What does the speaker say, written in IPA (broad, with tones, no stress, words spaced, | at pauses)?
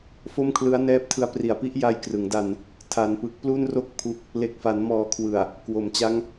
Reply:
fo˥˩mkʰlɯ˦˥a̯nɛː˥˩p̚tʰɯ˦˥a̯ pri˨˩a̯pi˦˥ʔ ja˧jkrɯ˩˦ŋ da˧n | tʰa˩˦npɯ˨˩k̚ plu˥˩nro˥˩k̚pʰu˦˥k̚ | le˨˩k̚fa˩˦nmɔː˨˩kʰwɯ˨˩a̯ | kwo˩˦mt͡ɕa˦˥ŋ